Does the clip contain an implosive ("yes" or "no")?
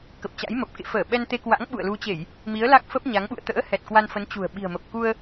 yes